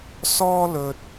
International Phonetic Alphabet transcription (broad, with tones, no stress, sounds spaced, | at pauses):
s ɔː˥ l ɵ˧ t̚